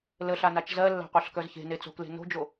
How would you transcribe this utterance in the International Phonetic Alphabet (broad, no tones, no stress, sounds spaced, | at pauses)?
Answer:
l ə ɬ a n a t͡ʃ z ɜ lː a̤ qʷ ɜ ɬ k œ z ç e̤ n e t͡s o̤ k l e̤ n o̤ d͡ʒ o